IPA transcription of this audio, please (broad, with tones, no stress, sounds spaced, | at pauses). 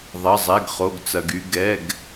ðˤ ɐ˧˥˧ zˤ ɛ˧˥˧ ɡ χ o˧˥˧ ɡ t͡s ɐ˧ ɡ y˧ ɡ ɛ˧˥˧ ɡ